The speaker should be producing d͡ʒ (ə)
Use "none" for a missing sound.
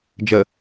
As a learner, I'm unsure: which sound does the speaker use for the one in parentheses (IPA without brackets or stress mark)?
ə